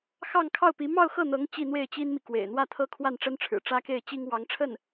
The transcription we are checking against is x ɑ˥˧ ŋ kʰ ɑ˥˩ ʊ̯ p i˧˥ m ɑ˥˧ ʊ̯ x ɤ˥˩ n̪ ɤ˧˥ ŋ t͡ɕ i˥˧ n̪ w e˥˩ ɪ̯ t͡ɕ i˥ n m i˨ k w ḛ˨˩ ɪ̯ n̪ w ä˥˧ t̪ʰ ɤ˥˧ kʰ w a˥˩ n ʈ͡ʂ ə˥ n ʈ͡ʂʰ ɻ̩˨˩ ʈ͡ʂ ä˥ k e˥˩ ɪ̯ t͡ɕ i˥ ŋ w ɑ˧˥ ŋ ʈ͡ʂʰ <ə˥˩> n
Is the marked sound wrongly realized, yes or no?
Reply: no